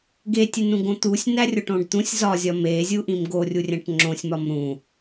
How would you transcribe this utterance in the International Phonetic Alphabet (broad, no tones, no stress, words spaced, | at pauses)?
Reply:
ɡetʲenũɡõ t̪usʲnærʲoʈõɖ t̪ũsʲ zɒzʲɒ mezʲuʔĩm ɡorʲurʲæ̃ʈ ŋ͡ǁõsʲmɒm ɾũ